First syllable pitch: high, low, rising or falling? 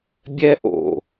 high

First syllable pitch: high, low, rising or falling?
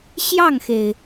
falling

